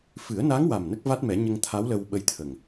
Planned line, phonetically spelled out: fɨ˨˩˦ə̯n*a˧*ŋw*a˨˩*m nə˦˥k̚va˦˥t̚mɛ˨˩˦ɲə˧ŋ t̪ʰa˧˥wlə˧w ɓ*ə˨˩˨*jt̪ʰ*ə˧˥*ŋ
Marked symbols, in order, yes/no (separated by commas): no, yes, no, no